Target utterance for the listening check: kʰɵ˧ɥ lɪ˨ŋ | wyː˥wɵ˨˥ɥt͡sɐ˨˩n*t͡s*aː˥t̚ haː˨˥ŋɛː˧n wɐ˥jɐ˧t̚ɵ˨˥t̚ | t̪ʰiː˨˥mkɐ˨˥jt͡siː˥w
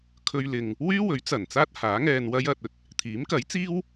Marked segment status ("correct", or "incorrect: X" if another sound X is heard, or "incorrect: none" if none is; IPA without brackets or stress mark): correct